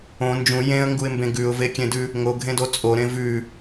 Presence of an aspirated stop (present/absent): absent